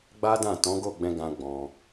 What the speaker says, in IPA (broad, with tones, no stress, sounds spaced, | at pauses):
ɡ͡b a˦ d ã˦˨ t ɔ̃˨˦ ɡ o˦˨ ɡ͡b ɛ̃˧ ɡ ã˦ ɡ͡b ɔ̃˧